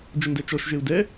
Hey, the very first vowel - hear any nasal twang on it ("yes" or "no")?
no